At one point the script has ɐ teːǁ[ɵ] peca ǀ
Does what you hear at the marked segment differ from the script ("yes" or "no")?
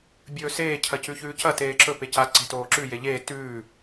no